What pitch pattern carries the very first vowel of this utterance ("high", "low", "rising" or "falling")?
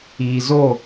low